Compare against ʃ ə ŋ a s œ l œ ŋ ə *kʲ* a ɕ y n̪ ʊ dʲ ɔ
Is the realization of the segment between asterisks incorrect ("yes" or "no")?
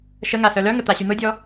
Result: yes